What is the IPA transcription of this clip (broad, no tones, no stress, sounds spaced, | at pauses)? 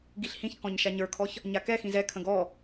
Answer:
ɡ i ɬ h ĩ ç k ɔ̃ ɲ ʃ a ɲ ə˞ kʰ ɔ ç | ɲ a k ɛ x ĩ z ɛ kʰ ə̃ ɡ ɔ